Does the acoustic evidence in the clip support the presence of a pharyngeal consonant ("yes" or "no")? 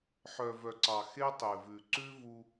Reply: yes